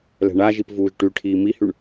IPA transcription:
l ɛ̤ ɳ a ʒ i p v uː ʒ ʈ y ʈʰ iː m i h y ɳ

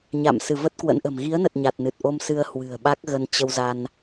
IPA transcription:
ɲ a̰˧˨ m s ɨ˧˩ v ə˦˥ t̚ k w ə̰˧˥ n ʔ ə̤˨˩ m ɣ i˨˦ ə̯ n ə˨˩ t̚ ɲ a˨˩ t̚ n ɨ˨˩ t̚ ʔ o˧ m s ɨ˧ ə̯ h w ɨ̤˨˩ ə̯ ɓ a˦˥ k̚ ɣ ə˧ n t͡ɕ ə˧ w z a˧ n

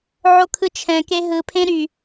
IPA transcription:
ʕ o kʰ ɯ t͡ʃʰ ɛ̃ k e ɦ ɯ pʰ ẽ ɾ y

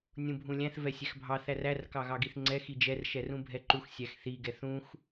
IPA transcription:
nʲ ũ bʱ ũ lʲ æ̃ θ v ɛ sʲ ɛ x bʱ ɑ θ æ r æ r k ɑ ɣ ɑ ɡ i θ ŋ͡ǀ ɛ x i d͡ʒ ɛ r ʃ ɛ r ũ bʱ ɛ ǃ u x sʲ æ x θ i ɡ ɛ θ ũ x

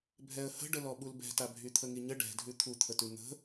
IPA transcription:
bʱ ɛ ə̯ h ə̤ ɖ ə l ɔ ɓ u l b ɛ̤ t a bʱ y t̪ʰ ə ŋ i ɲ ə ɖ ɛ̤ dʱ ʉ t̪ʰ u t̪ʰ ə t ʉ n̪ ə̤

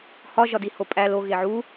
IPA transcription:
h ɒ ʒ ɒ d i h o pʼ æ l o ɣ e ʕ u

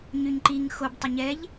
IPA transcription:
ɲ y ɲ ǃ i ŋ x o b tˤ ə ɲ ɛ ʎ

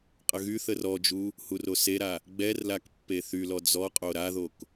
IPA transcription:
qʼ ə ɣ y θ ə r ɔ d͡ʒ u | h u r o s e ɾ a | ɡ͡b ɛ r l a k pː e θ y l ɔ d͡z ɔ qʼ o ɾ a ð o k

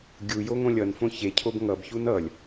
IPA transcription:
ɡʲ u j o ŋ õ lʲ ʌ n f õ ç e cʰ o b ŋ ʌ b ç u n ʌ lʲ

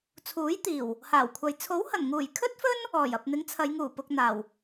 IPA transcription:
t͡sʰ uː˨˥ j t̪ iː˨˩ w | h aː˨˩ w kʷʰ ɐ˨ j t͡sʰ o˨˥ w h ɐ˨˩ n ŋ uː˨˩ j kʰ ɵ˥ t̚ f ɵ˥ n | ɔː˨˩ j ɐ˨ p̚ n̪ ɪ˨˥ ŋ t͡sʰ ɐ˨˧ j ŋ uː˨˩ p ʊ˨ k̚ n̪ aː˨˩ w

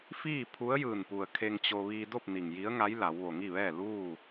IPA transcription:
f iː˥˨ pʰ u˧˥ ə̯ j ɯː˧˩ n p u˩ ə̯ kʰ e˧ ŋ t͡ɕ o˧ ʋ iː˧ d o˥˨ p̚ n i˩ ŋ j i˧˥ ə̯ ŋ a˧˥ j l a˩˧ w ʋ o˩ ŋ i˥˨ ʋ ɛː˥˨ l uː˥˨

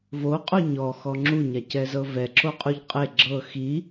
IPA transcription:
v o qʼ o ɲ ɔ x ɔ ŋ͡ǁ u ɲ a c ɛ z ɤ v ɛ ǁ o qʼ u ʎ qʼ e ɡ͡ǁ ɤ x i

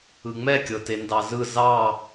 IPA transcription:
ɯ ŋ͡m ɛ kʲ ɤ t e n d ɑ z ɯ z ɑ

